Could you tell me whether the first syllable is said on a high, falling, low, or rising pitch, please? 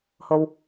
low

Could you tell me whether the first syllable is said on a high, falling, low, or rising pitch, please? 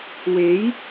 rising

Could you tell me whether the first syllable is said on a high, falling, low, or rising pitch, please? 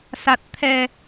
low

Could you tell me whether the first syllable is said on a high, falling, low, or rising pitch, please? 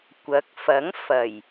rising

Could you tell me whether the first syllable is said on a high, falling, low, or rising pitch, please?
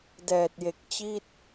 low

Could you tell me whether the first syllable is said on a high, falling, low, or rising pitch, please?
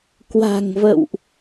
low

